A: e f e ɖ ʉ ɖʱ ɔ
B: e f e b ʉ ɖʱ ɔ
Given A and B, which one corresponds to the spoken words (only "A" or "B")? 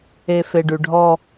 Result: A